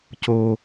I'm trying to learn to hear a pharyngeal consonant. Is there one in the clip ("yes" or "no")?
no